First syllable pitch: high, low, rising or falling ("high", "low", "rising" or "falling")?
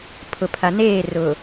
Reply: low